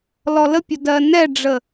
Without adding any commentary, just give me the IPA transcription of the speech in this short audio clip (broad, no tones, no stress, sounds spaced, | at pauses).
l ɔ l ə pʲ ə d ɜ n ɛ ɖ͡ʐ ə